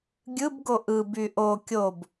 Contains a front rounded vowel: yes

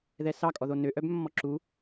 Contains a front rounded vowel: yes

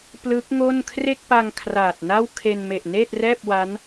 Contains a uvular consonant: no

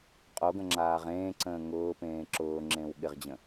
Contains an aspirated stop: no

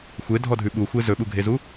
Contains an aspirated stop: no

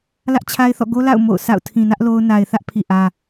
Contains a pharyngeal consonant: no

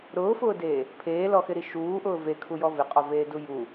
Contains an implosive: no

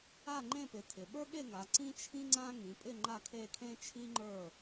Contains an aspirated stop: yes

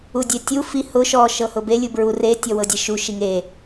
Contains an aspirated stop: no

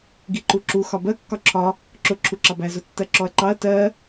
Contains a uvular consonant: no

